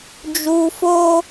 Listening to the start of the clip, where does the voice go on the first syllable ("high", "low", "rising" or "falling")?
high